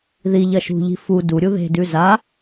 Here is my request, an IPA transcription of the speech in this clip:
ðiʎɐ ʃṳʎi̤ fu duɾʲu ðe̤dʉ za

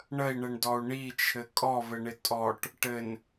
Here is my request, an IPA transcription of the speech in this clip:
ɳəi̯ɳɘɳdɔu̯ ɳit͡ʃʰɘ kʼɔvɘɳɪ tʼɔʈ | ʈɘn

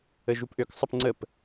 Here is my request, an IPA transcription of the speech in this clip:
əʒupʔøk sˤəpŋ͡ǀəp

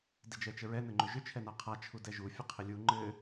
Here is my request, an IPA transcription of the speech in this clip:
did͡ʒɛt͡ʃəɹɛ nɘŋ͡ǃʏʒʏ t͡ʃʰɛnaqʰa t͡ʃʰudɛʒu fʲɘqʰɪlʲu ŋ͡ǃɘ

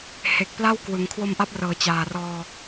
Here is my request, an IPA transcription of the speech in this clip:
he˨˩k̚ pla˥˩wkwɯ˩˦ŋ kʰwo˧mʔa˦˥p̚rɤː˩˦ t͡ɕaː˨˩rɔː˧

